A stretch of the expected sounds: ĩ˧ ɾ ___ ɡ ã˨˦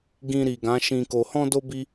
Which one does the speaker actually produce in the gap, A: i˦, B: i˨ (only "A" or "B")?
B